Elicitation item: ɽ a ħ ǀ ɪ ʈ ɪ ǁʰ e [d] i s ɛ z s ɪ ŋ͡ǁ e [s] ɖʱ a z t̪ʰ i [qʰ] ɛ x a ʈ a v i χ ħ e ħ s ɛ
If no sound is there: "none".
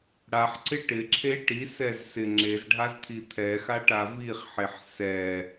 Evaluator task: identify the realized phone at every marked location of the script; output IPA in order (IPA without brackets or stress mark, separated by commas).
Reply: ʈ, z, t̪ʰ